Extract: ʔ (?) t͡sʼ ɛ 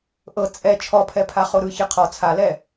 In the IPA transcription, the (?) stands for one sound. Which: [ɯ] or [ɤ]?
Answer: ɤ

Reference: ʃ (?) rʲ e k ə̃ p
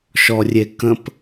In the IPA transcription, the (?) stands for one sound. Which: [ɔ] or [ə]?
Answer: ɔ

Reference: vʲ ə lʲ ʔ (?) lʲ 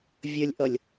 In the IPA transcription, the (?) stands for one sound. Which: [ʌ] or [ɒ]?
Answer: ʌ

